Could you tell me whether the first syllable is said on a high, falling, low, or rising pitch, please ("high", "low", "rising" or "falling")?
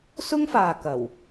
high